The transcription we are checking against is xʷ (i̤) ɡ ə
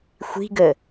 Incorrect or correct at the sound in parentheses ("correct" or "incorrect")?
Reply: correct